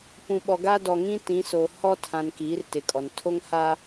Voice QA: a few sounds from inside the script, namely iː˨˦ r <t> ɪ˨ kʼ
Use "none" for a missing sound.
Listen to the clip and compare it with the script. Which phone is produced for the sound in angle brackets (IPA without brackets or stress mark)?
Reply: t